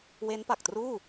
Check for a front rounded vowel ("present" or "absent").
absent